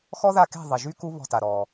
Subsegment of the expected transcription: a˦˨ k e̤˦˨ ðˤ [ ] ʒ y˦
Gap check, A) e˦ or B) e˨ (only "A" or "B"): B